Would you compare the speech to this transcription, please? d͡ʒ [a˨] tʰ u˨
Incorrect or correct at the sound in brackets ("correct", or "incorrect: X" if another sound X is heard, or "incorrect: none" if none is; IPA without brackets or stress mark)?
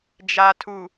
correct